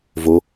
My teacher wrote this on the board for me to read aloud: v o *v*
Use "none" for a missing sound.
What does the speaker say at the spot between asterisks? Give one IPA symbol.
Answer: none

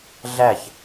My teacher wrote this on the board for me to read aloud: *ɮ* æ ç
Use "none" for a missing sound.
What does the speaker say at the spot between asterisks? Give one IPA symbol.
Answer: ɮ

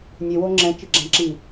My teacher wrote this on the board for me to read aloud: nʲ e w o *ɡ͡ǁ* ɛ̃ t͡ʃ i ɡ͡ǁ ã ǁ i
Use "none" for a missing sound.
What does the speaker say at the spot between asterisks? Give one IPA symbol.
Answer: ŋ͡ǁ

